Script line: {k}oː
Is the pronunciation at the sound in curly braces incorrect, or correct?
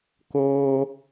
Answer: correct